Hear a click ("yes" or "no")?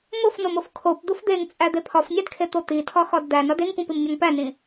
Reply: no